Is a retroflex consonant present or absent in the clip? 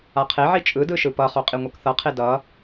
absent